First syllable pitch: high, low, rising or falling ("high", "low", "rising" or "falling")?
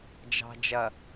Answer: low